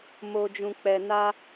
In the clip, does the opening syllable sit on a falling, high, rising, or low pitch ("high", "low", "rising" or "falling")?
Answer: low